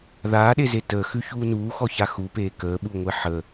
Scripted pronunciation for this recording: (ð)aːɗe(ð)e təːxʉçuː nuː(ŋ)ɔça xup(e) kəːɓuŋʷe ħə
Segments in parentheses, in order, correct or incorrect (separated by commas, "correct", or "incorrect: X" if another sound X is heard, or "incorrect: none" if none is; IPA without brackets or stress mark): correct, incorrect: z, incorrect: x, incorrect: eː